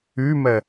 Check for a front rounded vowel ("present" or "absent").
present